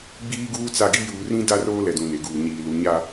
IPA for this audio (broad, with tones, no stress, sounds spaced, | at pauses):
ɡ͡b iː˦ ɡ uː˦ t͡s a˦˨ ɡ i˦ j uː˨ r ĩ˦ d a˦ r oː˦ l ɛ˨ d ũ˨ n e˨ ɡ uː˨ ɲ iː˨ l u˨˦ ɲ a˦